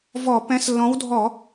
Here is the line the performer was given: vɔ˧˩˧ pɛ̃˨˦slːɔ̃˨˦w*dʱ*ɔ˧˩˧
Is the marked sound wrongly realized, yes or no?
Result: no